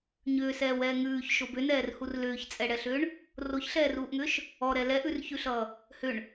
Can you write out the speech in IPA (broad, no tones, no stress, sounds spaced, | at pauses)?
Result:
ɲ ʏː s ɛː w ɛː ŋ ʉː ç ʃ o b ʏ n ɛː r h u r l ʏː ç t͡sʼ ɛ ɽ ɛ ɬ ʏː ɳ | r o ç ɬ ɛː r uː ʔ ŋ ʏː ʃ | ɔ ɾ ɛ l ɛ ʔ ʉ r ç ʉ ɬ ʌː | h ʏ ɳ